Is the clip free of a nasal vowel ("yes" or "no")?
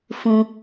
no